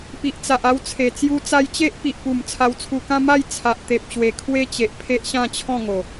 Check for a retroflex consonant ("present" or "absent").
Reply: absent